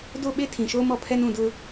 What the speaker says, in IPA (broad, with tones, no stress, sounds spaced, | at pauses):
d o˦˨ ɓ e˦ tʰ ĩ˨ ʃ oː˦ m ɔ˨ pʰ ɛ˦ n ũ˦˨ d ʊ˦